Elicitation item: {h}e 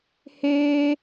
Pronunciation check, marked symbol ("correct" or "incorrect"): correct